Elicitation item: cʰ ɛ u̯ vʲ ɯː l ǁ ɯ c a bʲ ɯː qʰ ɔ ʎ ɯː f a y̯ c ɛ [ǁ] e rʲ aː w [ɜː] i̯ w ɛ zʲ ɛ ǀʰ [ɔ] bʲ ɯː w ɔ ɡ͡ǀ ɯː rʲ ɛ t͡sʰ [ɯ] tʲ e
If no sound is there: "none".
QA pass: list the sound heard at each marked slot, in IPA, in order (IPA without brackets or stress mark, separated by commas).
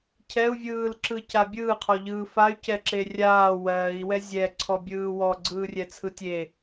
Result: ǁ, ɜː, ɔ, ɯ